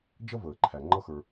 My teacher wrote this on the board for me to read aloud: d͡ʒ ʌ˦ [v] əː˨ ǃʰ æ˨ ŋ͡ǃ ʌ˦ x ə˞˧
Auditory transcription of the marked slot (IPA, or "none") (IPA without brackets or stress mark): v